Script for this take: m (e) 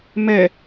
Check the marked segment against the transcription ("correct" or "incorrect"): incorrect